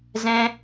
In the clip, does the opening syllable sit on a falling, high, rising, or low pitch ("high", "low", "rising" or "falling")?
high